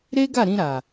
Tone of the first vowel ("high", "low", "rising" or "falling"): high